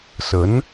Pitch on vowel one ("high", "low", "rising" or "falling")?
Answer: rising